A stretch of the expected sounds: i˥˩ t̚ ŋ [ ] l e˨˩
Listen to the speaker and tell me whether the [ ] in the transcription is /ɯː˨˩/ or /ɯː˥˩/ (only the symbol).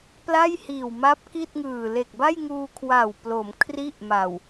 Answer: ɯː˨˩